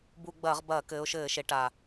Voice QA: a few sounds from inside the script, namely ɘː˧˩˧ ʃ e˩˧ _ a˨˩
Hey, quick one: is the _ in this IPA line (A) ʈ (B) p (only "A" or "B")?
A